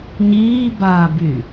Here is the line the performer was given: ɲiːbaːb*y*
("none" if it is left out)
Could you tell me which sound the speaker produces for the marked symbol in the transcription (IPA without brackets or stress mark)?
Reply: y